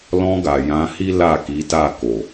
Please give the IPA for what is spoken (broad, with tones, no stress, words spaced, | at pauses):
lɔ̃˧ɡa˨ jã˨˦hi˦ la˦˨ki˨˦ta˦˨ ko˨